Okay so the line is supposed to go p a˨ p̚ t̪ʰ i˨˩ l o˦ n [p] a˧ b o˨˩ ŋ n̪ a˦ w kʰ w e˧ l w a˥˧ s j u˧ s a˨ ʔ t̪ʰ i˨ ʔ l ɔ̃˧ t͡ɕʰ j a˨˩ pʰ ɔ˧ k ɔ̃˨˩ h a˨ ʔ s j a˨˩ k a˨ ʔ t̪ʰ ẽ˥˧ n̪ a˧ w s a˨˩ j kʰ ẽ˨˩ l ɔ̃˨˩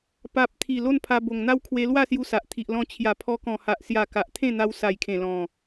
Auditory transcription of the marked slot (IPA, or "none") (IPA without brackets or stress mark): pʰ